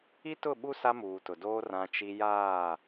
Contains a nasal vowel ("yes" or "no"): yes